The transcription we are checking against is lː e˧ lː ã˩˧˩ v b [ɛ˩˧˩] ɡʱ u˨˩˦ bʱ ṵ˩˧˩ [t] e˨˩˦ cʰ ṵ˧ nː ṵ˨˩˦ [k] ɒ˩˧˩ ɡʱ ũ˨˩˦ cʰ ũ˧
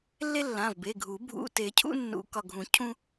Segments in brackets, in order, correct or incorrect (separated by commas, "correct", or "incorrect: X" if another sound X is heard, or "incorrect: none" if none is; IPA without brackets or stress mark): incorrect: e˩˧˩, correct, correct